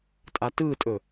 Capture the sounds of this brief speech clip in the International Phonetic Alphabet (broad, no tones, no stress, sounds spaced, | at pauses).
tʼ a t ɯː tʼ ɵ